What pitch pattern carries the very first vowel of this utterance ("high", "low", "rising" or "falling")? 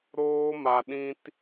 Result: high